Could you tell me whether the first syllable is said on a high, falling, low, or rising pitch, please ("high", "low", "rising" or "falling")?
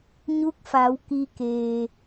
rising